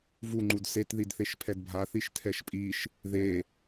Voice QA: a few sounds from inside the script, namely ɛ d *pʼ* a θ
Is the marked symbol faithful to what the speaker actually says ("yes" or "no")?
no